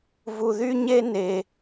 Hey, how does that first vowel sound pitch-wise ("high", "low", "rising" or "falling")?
low